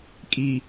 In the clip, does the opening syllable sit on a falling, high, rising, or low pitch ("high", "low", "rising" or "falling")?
low